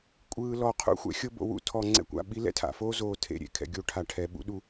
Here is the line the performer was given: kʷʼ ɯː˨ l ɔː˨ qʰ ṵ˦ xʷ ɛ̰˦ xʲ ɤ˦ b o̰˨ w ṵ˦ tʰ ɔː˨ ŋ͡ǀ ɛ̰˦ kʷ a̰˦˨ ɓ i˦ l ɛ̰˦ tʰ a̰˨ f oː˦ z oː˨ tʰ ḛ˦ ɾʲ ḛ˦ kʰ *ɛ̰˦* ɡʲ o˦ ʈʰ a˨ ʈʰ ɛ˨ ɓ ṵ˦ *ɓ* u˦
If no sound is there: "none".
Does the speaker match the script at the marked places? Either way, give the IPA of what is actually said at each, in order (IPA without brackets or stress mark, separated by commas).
ɛ̰˨, ɗ